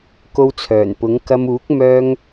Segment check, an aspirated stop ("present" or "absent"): present